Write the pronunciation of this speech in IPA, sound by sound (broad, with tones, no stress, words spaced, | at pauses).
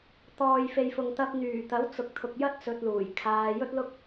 t̪ɔː˨jfe˨j fʊ˨ŋt̪ɐ˧p̚n̪yː˨˩ t̪ɐ˨˥wt͡sʊ˨k̚t̪ʰʊ˨k̚jɐ˥t̚ t͡sɵ˧t̚luː˨˩jkʰaː˧ jɵ˥t̚lʊ˥k̚